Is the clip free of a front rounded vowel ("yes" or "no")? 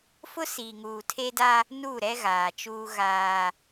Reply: yes